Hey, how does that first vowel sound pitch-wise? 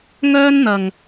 high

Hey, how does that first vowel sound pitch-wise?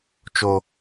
low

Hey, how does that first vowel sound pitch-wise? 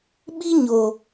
high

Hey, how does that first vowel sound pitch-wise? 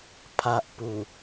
low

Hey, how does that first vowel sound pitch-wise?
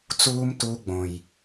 high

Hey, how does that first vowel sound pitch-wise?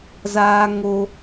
high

